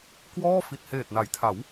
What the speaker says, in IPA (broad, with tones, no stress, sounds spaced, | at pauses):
k w ɔː˥˩ f i˨˩ t̚ h eː˨˩ t̚ n a˩˦ j tʰ a˩˦ w